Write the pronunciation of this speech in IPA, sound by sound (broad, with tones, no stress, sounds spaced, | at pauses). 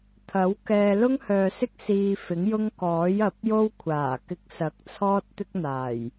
t̪ʰ ɐ˨˥ w k ɛː˧ l ʊ˥ ŋ h œː˨ s ɪ˥ k̚ s iː˧ f ɪ˨˥ ŋ j ʊ˥ ŋ k ɔː˨˥ j ɐ˨˥ p̚ j o˥ w kʷʰ aː˨˩ k ɪ˧ k̚ s ɐ˨˥ k̚ t͡sʰ ɔː˥ t̚ t̪ ɪ˥ k̚ n̪ aː˨˩ j